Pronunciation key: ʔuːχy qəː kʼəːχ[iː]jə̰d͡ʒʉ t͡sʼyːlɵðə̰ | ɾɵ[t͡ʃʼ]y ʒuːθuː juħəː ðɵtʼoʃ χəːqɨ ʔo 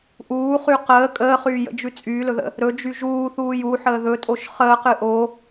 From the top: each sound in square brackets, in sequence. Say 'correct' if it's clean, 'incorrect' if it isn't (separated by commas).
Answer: incorrect, incorrect